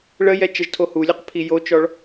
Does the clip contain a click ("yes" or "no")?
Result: no